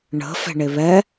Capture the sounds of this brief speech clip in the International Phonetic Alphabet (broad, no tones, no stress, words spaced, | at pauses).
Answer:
ɳə̤ fɛ̤ɳeβɛ